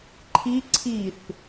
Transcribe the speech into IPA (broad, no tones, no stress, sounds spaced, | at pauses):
ǃʰ i ǀʰ i θ